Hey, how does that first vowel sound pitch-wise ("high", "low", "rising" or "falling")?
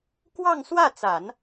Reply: falling